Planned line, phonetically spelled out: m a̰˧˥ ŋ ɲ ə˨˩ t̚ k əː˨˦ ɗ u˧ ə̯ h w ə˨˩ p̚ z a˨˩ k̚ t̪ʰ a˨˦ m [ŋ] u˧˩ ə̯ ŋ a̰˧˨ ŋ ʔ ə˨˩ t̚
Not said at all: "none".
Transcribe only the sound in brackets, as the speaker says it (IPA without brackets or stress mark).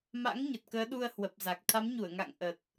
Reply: ɲ